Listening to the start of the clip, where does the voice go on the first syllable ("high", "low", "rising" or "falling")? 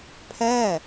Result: falling